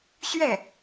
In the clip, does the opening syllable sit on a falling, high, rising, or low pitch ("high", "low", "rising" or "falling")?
falling